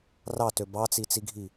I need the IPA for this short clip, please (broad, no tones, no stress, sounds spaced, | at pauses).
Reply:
r ɑ t ø b ɑ t͡s i t͡s i ɡʱ i